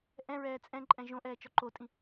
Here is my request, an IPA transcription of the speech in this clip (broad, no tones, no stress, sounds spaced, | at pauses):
ʔ ɛ̃ ɹ ɛː t͡sʼ ɛ̃ ǃʼ ɛ̃ ʒ õ ʔ ɛː t͡ʃ ɔ ǃ o tʼ ĩ